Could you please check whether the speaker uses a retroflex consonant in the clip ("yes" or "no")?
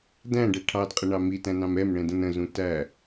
yes